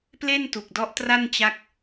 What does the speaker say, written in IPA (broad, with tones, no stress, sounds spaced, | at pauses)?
p l e˥˩ n t u˨˩ k̚ d ɔ˦˥ ʔ t r a˥˩ n t͡ɕ a˦˥ k̚